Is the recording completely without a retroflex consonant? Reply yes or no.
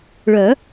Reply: no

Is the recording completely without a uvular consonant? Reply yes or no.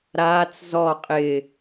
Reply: no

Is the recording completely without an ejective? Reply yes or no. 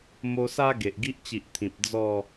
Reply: yes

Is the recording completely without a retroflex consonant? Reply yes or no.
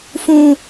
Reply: yes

